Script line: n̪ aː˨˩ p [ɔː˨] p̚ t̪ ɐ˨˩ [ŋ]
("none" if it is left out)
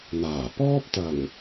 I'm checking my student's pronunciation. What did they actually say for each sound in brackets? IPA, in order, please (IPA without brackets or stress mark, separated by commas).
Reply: ɔː˥, ŋ